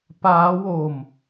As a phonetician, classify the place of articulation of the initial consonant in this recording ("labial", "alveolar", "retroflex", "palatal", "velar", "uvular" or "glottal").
labial